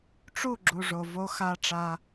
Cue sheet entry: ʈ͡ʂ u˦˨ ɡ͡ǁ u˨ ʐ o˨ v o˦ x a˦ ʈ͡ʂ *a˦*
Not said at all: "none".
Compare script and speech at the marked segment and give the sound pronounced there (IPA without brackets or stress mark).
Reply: a˦